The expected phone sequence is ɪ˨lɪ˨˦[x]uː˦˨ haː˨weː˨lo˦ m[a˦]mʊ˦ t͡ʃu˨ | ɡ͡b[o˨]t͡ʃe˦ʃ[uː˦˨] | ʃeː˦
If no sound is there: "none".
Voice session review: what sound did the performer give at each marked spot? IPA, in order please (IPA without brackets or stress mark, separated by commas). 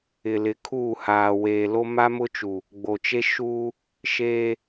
kʰ, a˦, o˨, uː˦